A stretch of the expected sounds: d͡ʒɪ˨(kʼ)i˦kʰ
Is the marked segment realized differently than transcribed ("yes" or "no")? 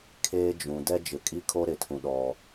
no